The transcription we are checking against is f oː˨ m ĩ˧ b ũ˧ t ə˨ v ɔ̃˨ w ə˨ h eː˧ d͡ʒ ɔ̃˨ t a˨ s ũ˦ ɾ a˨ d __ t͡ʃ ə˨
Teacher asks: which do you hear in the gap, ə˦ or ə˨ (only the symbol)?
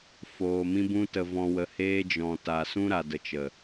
ə˨